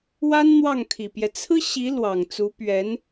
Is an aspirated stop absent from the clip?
no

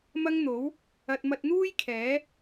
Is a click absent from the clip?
yes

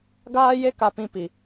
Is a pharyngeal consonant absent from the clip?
yes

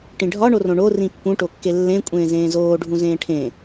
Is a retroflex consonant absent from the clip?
no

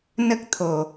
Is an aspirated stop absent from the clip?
no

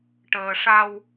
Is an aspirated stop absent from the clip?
yes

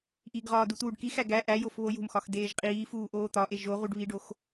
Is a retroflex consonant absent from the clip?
no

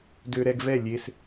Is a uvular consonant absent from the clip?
yes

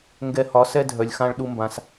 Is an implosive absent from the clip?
no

